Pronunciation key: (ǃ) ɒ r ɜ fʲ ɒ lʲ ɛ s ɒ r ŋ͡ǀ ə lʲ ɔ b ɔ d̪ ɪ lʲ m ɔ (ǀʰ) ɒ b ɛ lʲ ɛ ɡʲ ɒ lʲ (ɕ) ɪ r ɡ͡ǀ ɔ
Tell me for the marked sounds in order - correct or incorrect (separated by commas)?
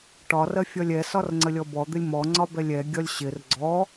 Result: incorrect, incorrect, correct